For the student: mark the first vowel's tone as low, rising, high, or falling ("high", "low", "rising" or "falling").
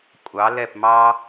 rising